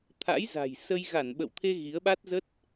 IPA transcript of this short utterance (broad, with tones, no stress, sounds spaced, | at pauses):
t̪ʰ a̰˧˥ j z a̤˨˩ j s ə˧ j ɣ a˧˩ n ɓ ə̰˧˨ w t̪ʰ e˧ ɣ i˨˦ ə̯ ɓ a˦˥ t̚ z ə˦˥ t̚